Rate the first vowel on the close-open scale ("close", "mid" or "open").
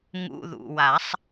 close